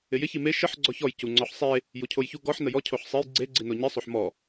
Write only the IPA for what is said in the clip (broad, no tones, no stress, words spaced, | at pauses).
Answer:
ɪjɪ çime ʃəħ ɡ͡ǀɔçɔj cuŋ͡ǀɔħsˤe | jucʰojçu ɡɔħ nəjɔ cʰoħsˤej ɡ͡ǀe ɡ͡ǀinoɲi sˤoħmɔ